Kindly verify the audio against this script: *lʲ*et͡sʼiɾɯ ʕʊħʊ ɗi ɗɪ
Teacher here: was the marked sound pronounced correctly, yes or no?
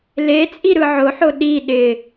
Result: no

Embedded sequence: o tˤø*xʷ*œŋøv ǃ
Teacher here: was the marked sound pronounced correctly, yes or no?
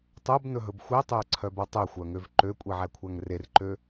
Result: yes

